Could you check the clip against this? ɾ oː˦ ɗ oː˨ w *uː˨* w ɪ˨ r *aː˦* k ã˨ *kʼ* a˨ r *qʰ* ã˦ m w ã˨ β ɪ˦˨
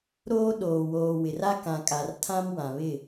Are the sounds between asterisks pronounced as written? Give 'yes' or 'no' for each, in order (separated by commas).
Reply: no, no, yes, no